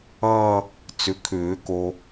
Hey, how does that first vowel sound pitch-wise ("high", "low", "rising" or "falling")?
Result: falling